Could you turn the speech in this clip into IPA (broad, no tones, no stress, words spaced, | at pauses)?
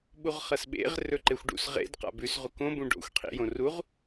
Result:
ɓuʁχɐsɓḛʁ rɵǃexʷɖṵs ʁḛd qa̰bʉs ʁukõ bũɖo̰xʷ qʰḭjõruʁ